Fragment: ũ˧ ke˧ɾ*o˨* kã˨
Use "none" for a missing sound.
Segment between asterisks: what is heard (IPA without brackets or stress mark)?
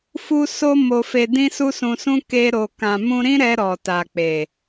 o˨